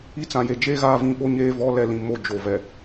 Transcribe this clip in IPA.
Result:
i˦ t͡s ã˨ j e˨ d͡ʒ eː˦ ɣ aː˦ v ĩ˦˨ ɓ o˦ ɲ eː˦ v ɔ˦ l ɛ˦˨ l ĩ˨ m o˦˨ d͡ʒ o˨ v ɛ˨

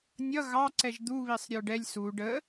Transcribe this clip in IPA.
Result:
nʲ ʌ ɣ ɑ ǀ ɛ ʒ d̪ u β i sˤ ɾʲ ə˞ ɖ ɛ lʲ s u ɖ ə

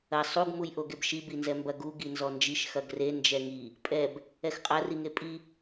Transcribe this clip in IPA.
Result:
ɐ sˤ u ɡ m u j ʔ o ɡ e b ʃ i b i n z ɛ m b ɐ ɡ u ɡ i n z ɔ n d͡ʒ i ʃ x ɐ ɡ r e n d͡ʒ ɛ ŋ i | pʼ ɛ b | ɛ x qʼ ɐ r i ŋ e pʼ i

